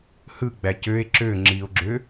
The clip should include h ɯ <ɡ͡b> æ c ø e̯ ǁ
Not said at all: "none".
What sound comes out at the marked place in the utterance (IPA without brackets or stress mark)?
ɡ͡b